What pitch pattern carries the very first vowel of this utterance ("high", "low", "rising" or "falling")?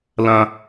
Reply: high